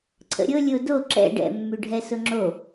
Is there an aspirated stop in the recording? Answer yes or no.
yes